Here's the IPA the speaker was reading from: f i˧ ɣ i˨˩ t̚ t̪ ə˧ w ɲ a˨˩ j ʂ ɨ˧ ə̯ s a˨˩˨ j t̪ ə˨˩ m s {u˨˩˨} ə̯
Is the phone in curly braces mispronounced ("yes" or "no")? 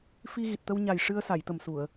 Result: no